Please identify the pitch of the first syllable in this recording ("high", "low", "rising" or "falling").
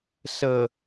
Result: low